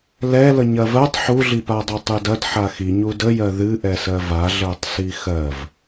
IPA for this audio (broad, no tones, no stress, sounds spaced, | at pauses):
l ɛ l ə ɲ ɐ v ɜ tˤ ħ u ɮ i p a dˤ a tˤ ɨ d ɐ d ħ a x i ɲ u d ə j ɜ ð ɨ ʔ ɛ s ɜ v a ɮ ɜ tˤ s i x ɜ v